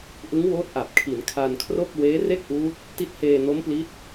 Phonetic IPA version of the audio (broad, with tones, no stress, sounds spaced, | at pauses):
ʔ ɯ˦˥ ŋ w oː˦˥ t̚ ʔ a˨˩ p̚ kʰ i˩˦ n kʰ a˧ n kʰ r o˥˩ k̚ w eː˦˥ r e˥˩ k̚ ʔ uː˦˥ t̚ | t i˦˥ t̚ h eː˧ n o˦˥ m p l i˦˥ t̚